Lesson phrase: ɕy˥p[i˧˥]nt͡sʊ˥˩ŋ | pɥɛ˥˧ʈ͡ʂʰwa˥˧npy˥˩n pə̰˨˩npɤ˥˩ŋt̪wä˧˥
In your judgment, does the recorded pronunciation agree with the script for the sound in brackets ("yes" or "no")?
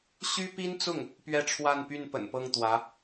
no